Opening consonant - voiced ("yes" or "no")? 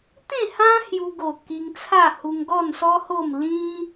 no